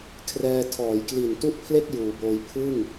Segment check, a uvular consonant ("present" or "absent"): absent